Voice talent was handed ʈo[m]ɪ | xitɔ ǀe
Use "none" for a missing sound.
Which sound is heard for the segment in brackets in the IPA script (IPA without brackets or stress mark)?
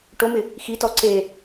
m